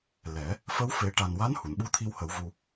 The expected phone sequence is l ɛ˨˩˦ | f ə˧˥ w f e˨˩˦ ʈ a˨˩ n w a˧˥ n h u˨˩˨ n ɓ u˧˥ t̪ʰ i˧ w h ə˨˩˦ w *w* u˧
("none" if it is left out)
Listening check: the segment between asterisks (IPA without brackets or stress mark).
v